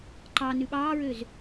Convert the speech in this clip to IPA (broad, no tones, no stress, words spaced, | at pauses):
ǃɑ nʉɓɑːɹøz